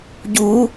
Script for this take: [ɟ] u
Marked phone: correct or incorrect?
correct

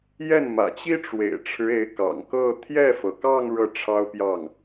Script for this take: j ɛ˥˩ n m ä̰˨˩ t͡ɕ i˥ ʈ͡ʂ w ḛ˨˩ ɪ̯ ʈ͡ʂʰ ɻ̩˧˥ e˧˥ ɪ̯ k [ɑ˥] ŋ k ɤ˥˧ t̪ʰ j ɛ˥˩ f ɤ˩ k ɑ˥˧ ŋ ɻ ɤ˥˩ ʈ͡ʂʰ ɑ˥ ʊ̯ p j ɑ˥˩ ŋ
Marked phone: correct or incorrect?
incorrect: ɑ̰˨˩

